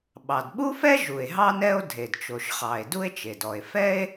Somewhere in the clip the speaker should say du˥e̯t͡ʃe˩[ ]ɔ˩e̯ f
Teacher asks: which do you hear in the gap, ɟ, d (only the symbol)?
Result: d